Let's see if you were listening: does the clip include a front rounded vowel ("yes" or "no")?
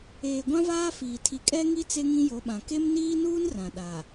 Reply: no